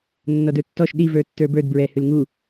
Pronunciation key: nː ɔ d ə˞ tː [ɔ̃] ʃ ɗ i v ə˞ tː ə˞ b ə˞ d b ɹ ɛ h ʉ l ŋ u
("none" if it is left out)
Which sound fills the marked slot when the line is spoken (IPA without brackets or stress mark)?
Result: ɔ